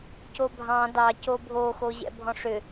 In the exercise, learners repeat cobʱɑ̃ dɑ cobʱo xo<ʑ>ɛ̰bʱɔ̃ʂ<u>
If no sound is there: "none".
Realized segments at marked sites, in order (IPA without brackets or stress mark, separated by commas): ʑ, ʏ